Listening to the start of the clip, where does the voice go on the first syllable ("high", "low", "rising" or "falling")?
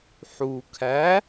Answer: low